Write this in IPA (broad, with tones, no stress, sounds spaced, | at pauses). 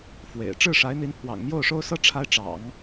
f w ḛ˨˩ ɪ̯ ʈ͡ʂ ɻ̩˥˩ ʂ a˧˥ ɪ̯ n̪ i˧˥ n pʰ w ɑ̰˨˩ ŋ m j o˥˩ ʊ̯ ʂ o˥ ʊ̯ s ɤ˥ ʈ͡ʂʰ a˥ ɪ̯ ʈ͡ʂ ɑ̰˨˩˦ ŋ